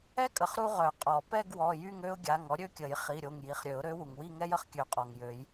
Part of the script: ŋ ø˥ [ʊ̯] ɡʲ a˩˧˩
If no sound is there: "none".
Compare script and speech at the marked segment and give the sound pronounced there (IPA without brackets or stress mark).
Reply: ʊ̯